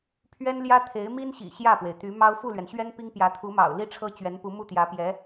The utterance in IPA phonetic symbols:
pʰɥɛ˥nljä˥t̪ʰe˧˥ɪ̯ mi˥nɕḭ˨˩ ɕjä˥˩pwe˩ɪ̯t̪y˧˥ mɑ˥ʊ̯ fu˥˩lɥɛ˩nɕɥɛ˥n pi˥ŋpjä˧˥ t̪ʰu˧˥mɑ̰˨˩ʊ̯ li˥˩ʈ͡ʂʰɤ˥t͡ɕɥɛ˧˥npu˧˥ mu˥˩t̪jä˧˥pjɛ˧˥

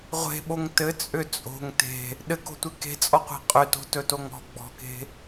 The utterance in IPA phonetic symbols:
ʁʷe̤ɓoŋ tɘt͡sʼʏ t͡sʼo̤ŋ te̤ | ɗɘko̤tʷe ke̤t͡sʼɔqʷe̤ qʼʏto̤tɵtoŋ ɔ̤ ɡ͡bɔ̤ke̤

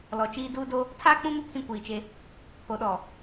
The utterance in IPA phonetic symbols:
lɔ˨t͡ʃiː˦ duː˦do˦ | tʰaː˦k͡pũ˦mɪ˦ pʰĩ˦kʷiː˨t͡ʃe˦ | pʰo˨ɗɔ˨

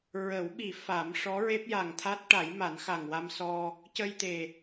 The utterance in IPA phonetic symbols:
ɹə˨˩˦wɓi˨˩˦ fa˨˩˦m ʂɔ˧˥ɹe˦˥p̚ja˨˩ŋ t̪ʰa˦˥t̚ʈa˨˩˦j ma˨˩˦nxa˨˩ŋwa˧m sɔ˧ | cə˧jt̪e˨˩

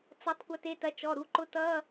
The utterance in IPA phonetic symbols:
t͡sʌ˩˥tˤ kʷɐ˩˥te˩˧˩tɐ˩˥ t͡ʃɔ˩˧˩ɾu˩˧˩ǃʊ˧˥˧ tʌ˧˥˧

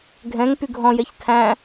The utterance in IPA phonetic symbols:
ɡʱɛ̃ŋ pyɡʱɔ̃jɛç tʰæ̃

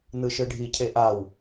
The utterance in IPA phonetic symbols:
nɯʃɯɖʱi cʰeʔaw

